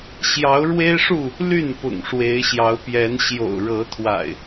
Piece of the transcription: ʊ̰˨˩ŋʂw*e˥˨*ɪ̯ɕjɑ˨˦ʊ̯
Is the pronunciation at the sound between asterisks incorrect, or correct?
incorrect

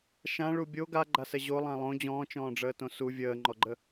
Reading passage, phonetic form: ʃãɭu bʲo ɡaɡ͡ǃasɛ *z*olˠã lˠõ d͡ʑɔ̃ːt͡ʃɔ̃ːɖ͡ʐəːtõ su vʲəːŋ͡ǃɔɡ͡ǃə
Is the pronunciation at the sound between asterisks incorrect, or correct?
incorrect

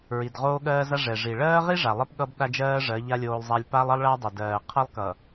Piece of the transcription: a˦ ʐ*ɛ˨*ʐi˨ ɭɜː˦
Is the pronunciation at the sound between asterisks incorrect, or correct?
correct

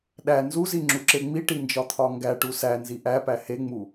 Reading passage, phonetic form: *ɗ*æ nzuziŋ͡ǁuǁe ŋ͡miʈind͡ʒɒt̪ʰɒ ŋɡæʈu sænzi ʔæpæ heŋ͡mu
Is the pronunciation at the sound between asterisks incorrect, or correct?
correct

